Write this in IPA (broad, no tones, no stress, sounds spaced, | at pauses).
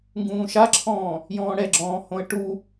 ŋ ɡ ũː ʃ a ǁʰ ɔ̃ː | j ɔ̃ː ɽ ɛ ɡ͡ǁ ɔ̃ː h õ ə̯ ʈ u